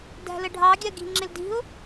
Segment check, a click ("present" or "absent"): present